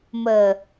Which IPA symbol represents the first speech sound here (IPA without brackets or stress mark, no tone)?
m